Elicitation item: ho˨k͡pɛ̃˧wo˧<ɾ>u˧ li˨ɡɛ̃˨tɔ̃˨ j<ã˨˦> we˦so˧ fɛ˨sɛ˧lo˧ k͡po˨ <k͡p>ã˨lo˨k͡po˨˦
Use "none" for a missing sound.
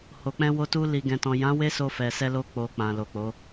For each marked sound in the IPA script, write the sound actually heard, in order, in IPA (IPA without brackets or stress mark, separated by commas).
t, ã˨˦, k͡p